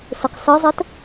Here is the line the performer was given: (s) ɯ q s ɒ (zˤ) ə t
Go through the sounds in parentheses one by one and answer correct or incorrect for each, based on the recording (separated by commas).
correct, correct